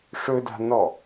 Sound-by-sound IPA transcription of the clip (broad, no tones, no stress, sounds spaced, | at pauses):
ʂ ɵ d a̤ n ɔ